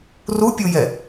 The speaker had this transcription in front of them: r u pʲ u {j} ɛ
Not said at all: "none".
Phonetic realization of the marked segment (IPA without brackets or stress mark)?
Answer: j